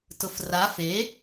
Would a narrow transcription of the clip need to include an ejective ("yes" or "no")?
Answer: no